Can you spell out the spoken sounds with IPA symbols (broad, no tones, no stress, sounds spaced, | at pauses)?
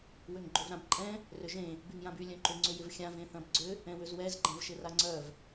w ʏ ŋ ɡ͡ǃ ʏ v ɾ ã b ǃʼ ɛ̃ | r ʏ ʒ ẽ | b y ŋ j ã b y lʲ œ̃ ǃ ʏ ŋ͡ǀ ʏ j ɪ v xʲ ã v ẽ θ ɐ̃ b ɡ͡ǀ ʏ | ɛ̃ w ʏ z w ɛ z ɡ͡ǃ ɛ̃ v ʃ ɪ r a ŋ͡ǀ œ v